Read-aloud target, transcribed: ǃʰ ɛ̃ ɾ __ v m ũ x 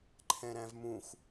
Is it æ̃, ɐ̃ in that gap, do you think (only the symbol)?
æ̃